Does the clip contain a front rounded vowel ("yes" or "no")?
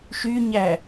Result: yes